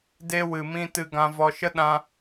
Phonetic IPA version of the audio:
d e˧ w ɨ˨ m ĩ˧ t ɨ˧ ɡ ã˧ v ɔ˧ ʃ ə˦ ɗ ã˧

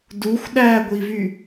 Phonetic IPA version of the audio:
d u xʷ ɗ æ ɡʷ i v y

